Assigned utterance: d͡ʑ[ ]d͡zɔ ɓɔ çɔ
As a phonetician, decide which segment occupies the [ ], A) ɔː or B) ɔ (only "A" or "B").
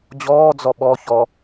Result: A